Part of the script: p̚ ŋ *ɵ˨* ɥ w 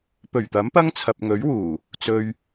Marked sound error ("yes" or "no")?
yes